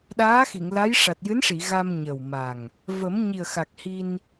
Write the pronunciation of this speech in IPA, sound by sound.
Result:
ɗaː˧˥xi˨˩˨ŋla˧˥j ʂa˨˩t̚jɨ˧˥nʂi˨˩˨ ɣa˧m ɲə˨˩wma˨˩ŋ | və˨˩˦mɲi˨˩ə̯xa˨˩k̚ hi˧n

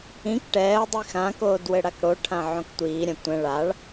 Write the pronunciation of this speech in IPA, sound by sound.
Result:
ĩk ʈɛːə̯ dˤixãkoːd wɘɽakɽoʈʰã ʕõktʷiːɾʲã tʷɛ̃ ɭaɭ

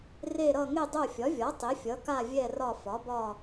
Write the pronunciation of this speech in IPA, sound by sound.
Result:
re˦˨ ɾʌ˦˨ ŋe˦˨dˤo˦˨fʲɒ˩˥vʲɒ˩˥ tˤe˩˥fʲʌ˩˥ka˦˨vʲɛ˦˨ rɒ˦˨ fɒ˩˥bɒ˦˨

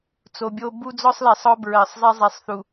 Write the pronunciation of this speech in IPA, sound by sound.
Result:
t͡so˨bʲo˦ bu˦d͡zɔ˦sˤlɛ˨sˤ ɔ˦bɹɜ˨sˤzˤɛ˦zˤɛ˨˦sˤ θu˨

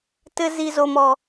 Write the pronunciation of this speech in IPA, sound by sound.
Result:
tɘ˦ zi˦zo˦mɔ˦

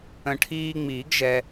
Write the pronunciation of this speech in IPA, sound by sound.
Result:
ə̃˨˩˦ʈʰiː˧ŋ͡miː˨˩˦ɡ ʒɛ˧

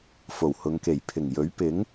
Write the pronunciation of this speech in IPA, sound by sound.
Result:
fo˨˩whʊ˨˧ŋke˨˩j pʰɪ˨˩ŋjɵ˨˥ɥ pɪ˨˥ŋ

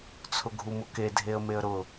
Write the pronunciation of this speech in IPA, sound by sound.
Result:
t͡sʰʊɡʱumʊke dʱeə̯meə̯ɾʊ

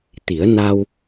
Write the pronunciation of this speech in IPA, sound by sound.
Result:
t̪i˨˩˦ə̯na˧w

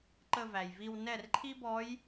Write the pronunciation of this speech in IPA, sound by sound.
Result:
ǃə˥˧væ˨jvi˥˧w nɛ˥˩rǃʰi˥bɔ˧˥j

